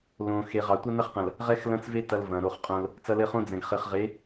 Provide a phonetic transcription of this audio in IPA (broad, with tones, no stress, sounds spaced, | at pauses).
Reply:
l õ˨ x e˨ ʁ ɑ˨ tʷ ɐ˦ n ɐ˦ χ q ɐ̃˨ l | ʁ ɛ˦ x l ɐ̃˦ t͡s v e˦ t ɐ˨ l v ɐ̃˨ ɾ o˦˨ χ qʼ õ˦ l | t͡s ɐ˨ l ɘ˨ χ õ˦ d͡z ɛ̃˨ ɡ χ ɘ˨ χ ʁ e˨˦